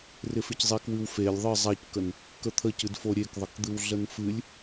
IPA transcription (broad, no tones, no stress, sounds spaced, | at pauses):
r ɪ f ɪ c zˤ i k w ɨ w f e lʲ ðˤ ɨ zˤ a c k ə n | k ə t̪ʰ ə c ɨ d f o ɾʲ e k ðˤ ə k d̪ ɨ w ɮ ə n f ɨ lʲ